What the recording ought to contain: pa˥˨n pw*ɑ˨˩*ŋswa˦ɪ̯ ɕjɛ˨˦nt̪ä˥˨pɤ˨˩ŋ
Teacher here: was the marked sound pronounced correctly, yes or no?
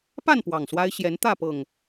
yes